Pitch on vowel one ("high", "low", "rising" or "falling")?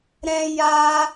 high